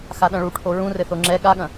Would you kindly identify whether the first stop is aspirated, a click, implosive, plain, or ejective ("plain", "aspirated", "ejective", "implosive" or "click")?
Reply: implosive